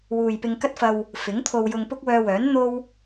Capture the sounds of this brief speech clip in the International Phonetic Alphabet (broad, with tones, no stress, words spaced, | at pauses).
wuː˨jpɪ˧ŋkɐ˥t̚fɐ˧w | fɪ˨˥ŋt̪ʰo˧w jʊ˧ŋpʊ˥k̚wœː˧wœː˨˥n n̪o˥w